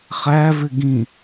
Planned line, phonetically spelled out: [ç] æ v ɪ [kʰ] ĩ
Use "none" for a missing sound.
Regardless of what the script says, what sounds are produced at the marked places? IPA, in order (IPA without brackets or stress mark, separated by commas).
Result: χ, ɡ